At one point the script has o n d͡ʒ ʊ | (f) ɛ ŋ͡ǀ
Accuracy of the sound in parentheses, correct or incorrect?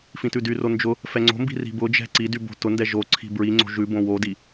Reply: correct